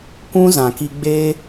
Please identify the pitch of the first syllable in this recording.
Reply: high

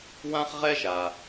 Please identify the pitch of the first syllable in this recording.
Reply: high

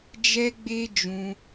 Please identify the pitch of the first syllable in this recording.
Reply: high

